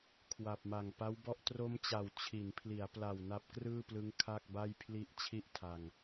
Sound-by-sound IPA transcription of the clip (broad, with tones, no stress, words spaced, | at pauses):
kʰwa˨˩p̚ma˨˩ŋpa˦˥wbɔ˥˩ʔ tro˦˥mt͡ɕa˨˩w t͡ɕʰi˩˦npʰli˩˦a̯pla˨˩w na˦˥p̚krɯː˥˩plɯ˦˥ŋ kʰa˥˩k̚ba˥˩jpʰli˥˩ʔ t͡ɕʰi˥˩ʔtʰa˧ŋ